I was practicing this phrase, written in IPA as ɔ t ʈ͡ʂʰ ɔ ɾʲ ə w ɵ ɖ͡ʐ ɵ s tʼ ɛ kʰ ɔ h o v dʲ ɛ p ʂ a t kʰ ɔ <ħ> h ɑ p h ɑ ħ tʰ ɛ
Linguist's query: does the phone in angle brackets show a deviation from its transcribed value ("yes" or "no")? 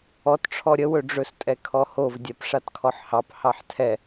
no